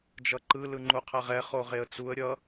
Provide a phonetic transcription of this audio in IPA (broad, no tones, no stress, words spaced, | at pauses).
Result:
d͡ʒʌǃɯ lɯŋ͡ǃuqʰɛʁɛ χoʁeə̯t͡suə̯ ɾʲʌ